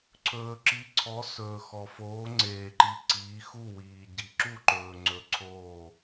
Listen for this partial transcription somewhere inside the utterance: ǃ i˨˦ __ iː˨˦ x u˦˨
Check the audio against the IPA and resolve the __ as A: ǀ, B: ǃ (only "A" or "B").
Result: A